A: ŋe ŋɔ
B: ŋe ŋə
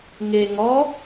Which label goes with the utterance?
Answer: A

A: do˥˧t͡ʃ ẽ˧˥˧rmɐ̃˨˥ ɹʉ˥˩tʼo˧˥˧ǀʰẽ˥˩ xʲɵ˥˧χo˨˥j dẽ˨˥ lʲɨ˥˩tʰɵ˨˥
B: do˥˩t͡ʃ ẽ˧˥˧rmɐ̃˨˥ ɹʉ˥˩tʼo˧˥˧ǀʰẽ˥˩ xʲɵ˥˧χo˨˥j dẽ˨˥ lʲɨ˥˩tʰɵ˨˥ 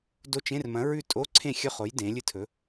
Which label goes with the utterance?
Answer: B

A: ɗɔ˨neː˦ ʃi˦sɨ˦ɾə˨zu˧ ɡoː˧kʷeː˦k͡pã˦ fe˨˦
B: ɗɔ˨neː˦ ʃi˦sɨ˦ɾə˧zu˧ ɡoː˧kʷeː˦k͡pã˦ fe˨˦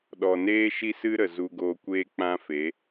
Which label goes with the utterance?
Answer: A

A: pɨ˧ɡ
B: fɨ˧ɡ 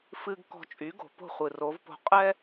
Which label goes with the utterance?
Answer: B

